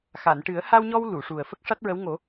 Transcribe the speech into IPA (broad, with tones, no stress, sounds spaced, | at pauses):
x a˨˩˨ n ʈ ɨ˨˩˦ ə̯ h a˧ w ɲ ɔ˧ w l u˨˩˨ ʂ u˨˩ ə̯ f ə˦˥ k̚ ʂ a˦˥ t̚ ɹ ə˧˥ w ŋ o˨˩˦